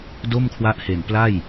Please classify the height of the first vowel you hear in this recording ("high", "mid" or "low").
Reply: mid